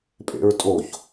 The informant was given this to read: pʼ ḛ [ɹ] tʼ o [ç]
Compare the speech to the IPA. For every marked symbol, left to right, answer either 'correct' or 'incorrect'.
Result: correct, correct

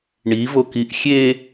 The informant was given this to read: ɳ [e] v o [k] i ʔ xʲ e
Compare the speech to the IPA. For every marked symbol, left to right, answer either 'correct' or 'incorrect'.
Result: incorrect, correct

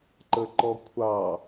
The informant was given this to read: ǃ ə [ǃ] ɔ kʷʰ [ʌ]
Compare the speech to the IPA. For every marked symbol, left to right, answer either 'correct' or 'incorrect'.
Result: correct, incorrect

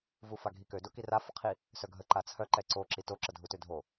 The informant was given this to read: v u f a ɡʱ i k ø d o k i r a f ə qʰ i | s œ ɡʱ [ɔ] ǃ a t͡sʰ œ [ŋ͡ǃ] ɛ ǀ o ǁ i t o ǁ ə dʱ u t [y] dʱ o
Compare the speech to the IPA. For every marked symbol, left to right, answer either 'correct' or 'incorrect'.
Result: incorrect, incorrect, incorrect

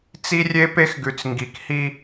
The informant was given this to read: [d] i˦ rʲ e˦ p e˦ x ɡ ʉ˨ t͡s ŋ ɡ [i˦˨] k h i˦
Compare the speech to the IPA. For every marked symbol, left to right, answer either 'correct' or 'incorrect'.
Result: incorrect, incorrect

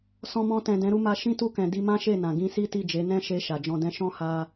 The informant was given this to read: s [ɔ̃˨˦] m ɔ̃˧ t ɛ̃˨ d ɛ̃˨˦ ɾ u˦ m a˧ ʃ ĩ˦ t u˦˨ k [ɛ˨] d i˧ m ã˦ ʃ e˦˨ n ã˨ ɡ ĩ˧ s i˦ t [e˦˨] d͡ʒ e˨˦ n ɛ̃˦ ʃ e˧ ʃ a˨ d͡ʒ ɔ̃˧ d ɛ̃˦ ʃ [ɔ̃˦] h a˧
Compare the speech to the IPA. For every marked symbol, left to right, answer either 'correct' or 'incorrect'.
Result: incorrect, incorrect, incorrect, correct

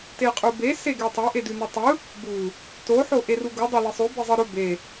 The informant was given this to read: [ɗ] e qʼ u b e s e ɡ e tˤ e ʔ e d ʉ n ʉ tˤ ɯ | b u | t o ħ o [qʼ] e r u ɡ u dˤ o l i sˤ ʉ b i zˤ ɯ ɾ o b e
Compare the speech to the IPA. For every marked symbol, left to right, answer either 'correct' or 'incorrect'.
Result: incorrect, incorrect

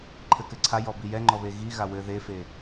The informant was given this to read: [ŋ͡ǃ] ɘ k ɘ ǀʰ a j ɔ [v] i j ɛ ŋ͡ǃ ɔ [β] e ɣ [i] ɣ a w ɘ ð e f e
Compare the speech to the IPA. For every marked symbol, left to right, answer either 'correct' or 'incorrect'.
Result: incorrect, incorrect, correct, correct

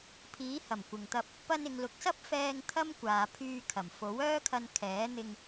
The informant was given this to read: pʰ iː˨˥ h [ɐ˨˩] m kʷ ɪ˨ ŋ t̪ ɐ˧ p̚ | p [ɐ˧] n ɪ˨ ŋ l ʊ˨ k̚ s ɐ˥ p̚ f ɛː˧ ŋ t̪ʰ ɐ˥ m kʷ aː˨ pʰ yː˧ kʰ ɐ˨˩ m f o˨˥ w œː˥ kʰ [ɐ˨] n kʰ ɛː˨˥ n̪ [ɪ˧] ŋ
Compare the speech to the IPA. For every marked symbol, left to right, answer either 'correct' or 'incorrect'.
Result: correct, correct, incorrect, correct

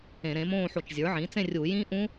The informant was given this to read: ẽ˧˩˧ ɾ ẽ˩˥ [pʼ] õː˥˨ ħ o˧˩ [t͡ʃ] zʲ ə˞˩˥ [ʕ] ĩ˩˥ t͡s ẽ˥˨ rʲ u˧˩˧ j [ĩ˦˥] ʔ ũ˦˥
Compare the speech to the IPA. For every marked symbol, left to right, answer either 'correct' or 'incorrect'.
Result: incorrect, correct, correct, correct

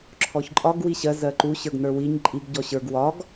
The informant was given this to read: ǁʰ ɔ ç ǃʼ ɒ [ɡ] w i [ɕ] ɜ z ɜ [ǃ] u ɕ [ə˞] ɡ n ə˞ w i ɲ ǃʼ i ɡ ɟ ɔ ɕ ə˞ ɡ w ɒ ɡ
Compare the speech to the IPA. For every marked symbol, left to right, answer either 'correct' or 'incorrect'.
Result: correct, correct, correct, correct

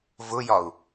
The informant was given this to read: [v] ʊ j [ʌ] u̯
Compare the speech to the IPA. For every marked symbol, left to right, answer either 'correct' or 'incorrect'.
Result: correct, incorrect

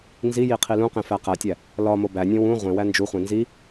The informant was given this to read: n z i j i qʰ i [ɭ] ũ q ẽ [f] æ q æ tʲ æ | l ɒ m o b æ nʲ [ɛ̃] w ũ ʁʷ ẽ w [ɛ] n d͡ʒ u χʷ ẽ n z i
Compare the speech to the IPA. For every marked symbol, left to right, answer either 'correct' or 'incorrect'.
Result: incorrect, correct, incorrect, incorrect

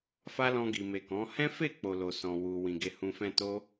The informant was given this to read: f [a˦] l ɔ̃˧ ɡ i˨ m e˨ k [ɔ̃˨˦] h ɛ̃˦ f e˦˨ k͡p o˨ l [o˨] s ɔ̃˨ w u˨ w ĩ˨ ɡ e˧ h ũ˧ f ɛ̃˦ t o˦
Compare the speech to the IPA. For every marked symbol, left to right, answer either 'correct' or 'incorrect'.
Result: correct, correct, correct

